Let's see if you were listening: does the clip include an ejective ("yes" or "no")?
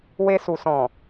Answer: no